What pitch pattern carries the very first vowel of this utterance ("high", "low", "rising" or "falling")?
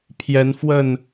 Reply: rising